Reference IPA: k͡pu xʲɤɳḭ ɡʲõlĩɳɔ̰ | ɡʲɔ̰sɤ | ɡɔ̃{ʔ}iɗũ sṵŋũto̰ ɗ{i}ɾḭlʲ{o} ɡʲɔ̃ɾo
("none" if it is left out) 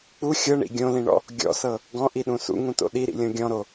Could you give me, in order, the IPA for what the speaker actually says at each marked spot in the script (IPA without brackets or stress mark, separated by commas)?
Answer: ʔ, i, õ